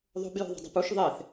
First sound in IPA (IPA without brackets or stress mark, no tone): ðˤ